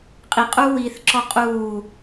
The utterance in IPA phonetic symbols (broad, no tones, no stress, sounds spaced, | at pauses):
qʼ i qʼ u w iː θ ǁ ɔ qʼ uː